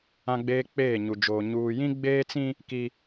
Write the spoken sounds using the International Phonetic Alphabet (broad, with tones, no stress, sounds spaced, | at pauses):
ã˦ ɡ͡b eː˦ k͡p eː˦˨ ɲ u˨ d͡ʒ oː˨ ɲ uː˨ j ĩ˦ ɡ͡b eː˦ t͡s ĩ˦ | k i˦